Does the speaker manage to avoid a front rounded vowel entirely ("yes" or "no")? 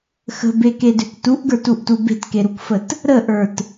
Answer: no